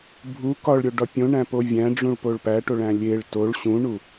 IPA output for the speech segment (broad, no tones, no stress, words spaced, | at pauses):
bʱu kɒɭɾʲoɖɒ pʲõɳæ̃po vʲæ̃ɖ͡ʐũɭpoɭ pæʈoɭæ̃ lʲeɭ toɭ ɕũɳu